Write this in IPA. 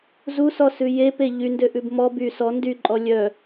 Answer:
z u s ɔ s ʉ j e p e ʎ y n d ø ʔ ʉ b m ɔ b y s ɔ n d y ǃʼ ɔ lʲ œ

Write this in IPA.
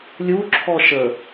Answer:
lʲ u ǁʰ ɔ ʃ ə

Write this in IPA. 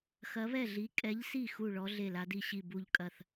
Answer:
x ɐ˨˥ β ɛ˥˩ ɮ i˨˥ kʼ ɛ˨˥ ʎ s i˥˩ x u˥˩ ɭ ɔ˨˥ ɮ e˥˩ l a˨˥ d i˥˩ ɕ i˥˩ b u˥˩ ʎ kʼ ɐ˥˩ θ

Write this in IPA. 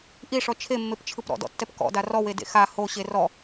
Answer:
ʔ i ʂ ɔ t͡ʃʰ e mː e p t͡ʃʰ ɯ p ɾ ɔ̰ d ɔ̰ tː ɛ p k ɔ̰ d a r ɔ w e d ḛ x a h o ɕ e r ɔ

